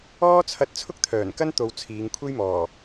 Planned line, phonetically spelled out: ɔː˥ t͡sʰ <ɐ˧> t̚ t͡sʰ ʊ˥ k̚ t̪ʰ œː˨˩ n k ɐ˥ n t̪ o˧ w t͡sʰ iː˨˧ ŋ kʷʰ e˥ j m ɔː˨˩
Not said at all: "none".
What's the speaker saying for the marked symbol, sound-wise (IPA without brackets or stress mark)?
ɐ˧